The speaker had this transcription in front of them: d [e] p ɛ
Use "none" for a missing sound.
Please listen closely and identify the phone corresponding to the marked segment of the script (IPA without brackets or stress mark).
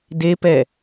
e